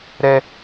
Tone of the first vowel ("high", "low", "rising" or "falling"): high